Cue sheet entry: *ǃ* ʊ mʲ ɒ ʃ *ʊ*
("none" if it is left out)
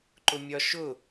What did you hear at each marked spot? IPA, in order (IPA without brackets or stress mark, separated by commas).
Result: ǃ, ʊ